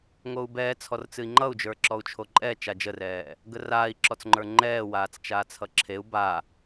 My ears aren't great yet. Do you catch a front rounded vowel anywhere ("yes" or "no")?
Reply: no